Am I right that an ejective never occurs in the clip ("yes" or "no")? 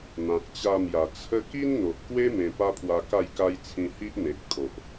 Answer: yes